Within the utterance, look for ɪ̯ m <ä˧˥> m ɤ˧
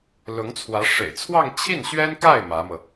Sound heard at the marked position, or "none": ä˧˥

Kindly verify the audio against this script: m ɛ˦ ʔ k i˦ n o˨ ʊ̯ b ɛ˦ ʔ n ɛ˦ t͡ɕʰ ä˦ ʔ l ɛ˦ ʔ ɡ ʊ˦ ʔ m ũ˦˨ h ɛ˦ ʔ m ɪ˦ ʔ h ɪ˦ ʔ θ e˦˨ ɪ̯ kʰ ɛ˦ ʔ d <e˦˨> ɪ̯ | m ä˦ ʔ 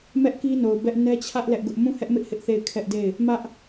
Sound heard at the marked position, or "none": e˦˨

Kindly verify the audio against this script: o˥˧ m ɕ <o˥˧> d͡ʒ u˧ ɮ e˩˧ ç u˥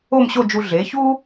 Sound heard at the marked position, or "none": o˥˧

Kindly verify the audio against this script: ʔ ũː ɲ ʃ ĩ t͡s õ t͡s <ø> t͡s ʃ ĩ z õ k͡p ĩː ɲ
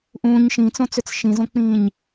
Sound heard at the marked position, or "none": ø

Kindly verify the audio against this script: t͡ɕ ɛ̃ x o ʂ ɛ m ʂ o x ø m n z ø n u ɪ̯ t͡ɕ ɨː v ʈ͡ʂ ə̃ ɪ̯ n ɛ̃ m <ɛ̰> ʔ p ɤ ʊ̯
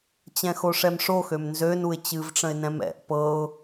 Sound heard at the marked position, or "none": ɛ̰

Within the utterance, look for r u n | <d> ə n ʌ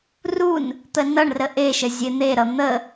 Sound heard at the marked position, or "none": t̪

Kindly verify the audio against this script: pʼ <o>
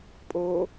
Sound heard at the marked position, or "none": o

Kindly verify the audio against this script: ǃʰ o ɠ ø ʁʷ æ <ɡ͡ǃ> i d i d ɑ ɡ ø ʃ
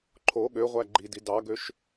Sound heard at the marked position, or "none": ɡ͡ǃ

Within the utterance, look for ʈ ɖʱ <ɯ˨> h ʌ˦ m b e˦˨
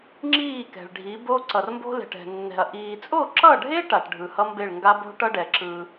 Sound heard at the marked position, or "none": ɯ˨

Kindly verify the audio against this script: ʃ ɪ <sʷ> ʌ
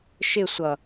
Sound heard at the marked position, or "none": sʷ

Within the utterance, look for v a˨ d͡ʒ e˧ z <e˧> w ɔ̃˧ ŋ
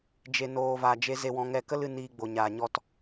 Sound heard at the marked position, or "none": e˧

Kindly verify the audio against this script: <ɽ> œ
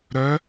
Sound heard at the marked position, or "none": ɾ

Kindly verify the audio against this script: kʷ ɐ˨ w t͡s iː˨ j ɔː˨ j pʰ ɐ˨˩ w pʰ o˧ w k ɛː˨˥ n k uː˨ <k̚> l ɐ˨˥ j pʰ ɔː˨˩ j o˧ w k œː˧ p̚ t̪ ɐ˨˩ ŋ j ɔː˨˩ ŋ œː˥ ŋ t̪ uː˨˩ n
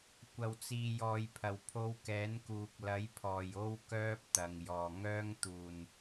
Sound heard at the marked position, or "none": k̚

